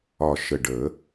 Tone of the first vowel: low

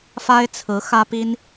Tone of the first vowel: high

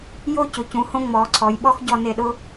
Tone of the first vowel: falling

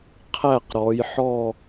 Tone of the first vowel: falling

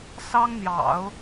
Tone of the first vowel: high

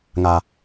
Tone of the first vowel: low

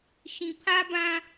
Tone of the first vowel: low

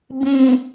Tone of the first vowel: low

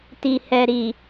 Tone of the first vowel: low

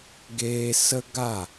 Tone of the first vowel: high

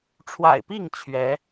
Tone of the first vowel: low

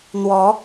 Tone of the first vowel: rising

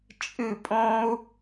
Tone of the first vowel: falling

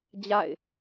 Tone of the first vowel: falling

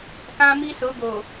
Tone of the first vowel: high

